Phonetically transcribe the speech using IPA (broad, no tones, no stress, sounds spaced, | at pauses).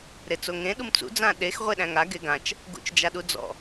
ɾ e t͡s o ŋ ẽ ɗ u m t͡s ṵ d͡z ã ɗ e x ʁʷ e ɗ æ̃ ŋ a ɡ e ɡ ã t͡ʃ | ɡ ṵ t͡ʃ d͡ʒ a ɗ u d͡z ɔ̰